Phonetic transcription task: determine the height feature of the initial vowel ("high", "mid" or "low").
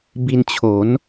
high